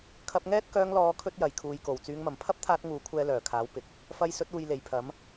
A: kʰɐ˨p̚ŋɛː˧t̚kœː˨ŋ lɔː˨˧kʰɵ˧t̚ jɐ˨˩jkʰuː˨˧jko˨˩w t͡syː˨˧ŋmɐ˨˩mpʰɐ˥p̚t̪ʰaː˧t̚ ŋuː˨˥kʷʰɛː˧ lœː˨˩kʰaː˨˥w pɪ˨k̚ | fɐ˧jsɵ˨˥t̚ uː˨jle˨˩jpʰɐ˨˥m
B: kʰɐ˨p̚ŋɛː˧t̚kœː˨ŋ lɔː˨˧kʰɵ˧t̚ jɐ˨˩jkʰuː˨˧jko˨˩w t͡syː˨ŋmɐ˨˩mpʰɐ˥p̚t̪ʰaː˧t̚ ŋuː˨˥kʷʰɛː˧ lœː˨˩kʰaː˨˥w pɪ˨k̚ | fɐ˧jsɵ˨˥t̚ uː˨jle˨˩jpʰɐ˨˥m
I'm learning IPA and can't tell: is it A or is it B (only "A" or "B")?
A